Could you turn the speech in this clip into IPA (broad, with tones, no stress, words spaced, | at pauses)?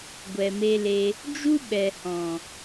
ɡʷɛ˨me˧le˧ | d͡ʒu˦ ɓɛ˨hɔ̃˨